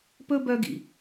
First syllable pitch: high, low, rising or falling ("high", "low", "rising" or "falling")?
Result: high